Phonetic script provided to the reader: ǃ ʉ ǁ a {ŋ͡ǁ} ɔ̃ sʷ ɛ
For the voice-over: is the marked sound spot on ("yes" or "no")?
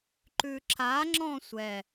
yes